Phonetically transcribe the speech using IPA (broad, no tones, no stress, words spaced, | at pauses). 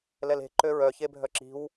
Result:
lɛle̤ ǃøɹœçebʱœ ǁi̤w